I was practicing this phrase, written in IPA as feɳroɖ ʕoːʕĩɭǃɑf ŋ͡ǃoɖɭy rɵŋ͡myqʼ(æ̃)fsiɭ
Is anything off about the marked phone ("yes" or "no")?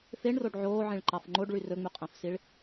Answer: no